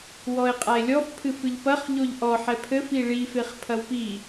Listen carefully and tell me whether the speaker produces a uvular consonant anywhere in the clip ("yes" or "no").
yes